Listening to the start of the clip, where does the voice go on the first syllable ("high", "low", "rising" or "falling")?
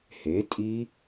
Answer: rising